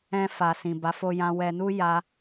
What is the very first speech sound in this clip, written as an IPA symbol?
ɛ̃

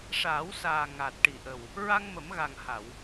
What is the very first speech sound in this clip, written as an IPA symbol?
ʂ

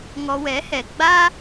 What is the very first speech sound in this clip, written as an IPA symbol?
ŋ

